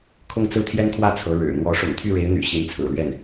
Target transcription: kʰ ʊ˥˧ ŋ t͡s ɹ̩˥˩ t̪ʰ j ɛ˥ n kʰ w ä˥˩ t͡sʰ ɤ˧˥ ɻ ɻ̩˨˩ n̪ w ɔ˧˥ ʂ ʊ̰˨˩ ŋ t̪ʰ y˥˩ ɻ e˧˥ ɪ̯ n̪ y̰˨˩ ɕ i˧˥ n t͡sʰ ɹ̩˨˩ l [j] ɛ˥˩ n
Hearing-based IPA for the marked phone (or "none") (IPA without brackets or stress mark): ɥ